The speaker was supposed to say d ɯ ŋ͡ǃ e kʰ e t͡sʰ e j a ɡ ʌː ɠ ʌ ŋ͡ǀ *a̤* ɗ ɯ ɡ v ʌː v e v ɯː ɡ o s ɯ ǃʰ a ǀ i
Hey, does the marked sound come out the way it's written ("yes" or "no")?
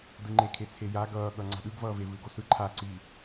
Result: yes